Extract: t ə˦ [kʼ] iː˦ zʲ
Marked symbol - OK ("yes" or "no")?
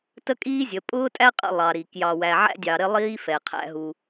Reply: yes